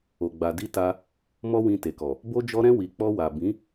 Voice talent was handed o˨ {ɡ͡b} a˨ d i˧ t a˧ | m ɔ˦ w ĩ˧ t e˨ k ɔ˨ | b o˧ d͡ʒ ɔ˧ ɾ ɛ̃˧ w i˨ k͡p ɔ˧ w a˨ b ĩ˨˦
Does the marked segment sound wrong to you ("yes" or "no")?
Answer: no